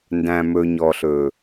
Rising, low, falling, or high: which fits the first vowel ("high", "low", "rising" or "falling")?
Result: low